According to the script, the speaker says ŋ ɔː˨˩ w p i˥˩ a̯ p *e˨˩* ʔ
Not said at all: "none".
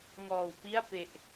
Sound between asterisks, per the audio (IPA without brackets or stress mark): e˨˩